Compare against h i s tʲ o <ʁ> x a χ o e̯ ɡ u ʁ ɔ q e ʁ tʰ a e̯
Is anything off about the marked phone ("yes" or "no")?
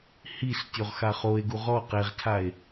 no